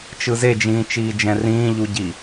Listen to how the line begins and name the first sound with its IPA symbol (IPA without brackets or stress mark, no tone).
t͡ʃ